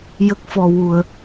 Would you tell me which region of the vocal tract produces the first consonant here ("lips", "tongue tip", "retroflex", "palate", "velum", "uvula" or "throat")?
palate